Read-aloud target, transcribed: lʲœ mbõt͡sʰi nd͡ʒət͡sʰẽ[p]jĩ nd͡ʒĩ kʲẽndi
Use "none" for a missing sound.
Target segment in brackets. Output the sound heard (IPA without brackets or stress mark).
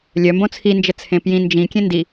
p